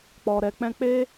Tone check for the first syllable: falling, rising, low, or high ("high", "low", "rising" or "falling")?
low